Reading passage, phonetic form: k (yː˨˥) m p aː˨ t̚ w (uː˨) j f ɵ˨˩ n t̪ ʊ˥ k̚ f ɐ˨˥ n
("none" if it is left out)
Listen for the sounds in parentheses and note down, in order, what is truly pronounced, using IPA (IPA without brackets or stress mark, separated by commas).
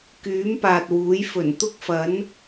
yː˨˥, uː˨˥